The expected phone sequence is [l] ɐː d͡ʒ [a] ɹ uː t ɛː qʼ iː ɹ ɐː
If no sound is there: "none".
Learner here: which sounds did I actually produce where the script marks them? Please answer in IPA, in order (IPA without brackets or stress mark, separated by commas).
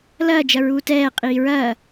l, ɐ